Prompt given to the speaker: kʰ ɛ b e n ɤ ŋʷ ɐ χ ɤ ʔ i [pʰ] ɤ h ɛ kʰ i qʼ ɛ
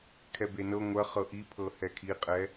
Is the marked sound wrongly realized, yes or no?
no